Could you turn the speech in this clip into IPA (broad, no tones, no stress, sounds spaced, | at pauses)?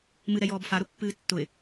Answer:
m ɨ ɾ ɛ j ɔː b f a ɾ ʊ pː ɨː tː ʊ ɪ̯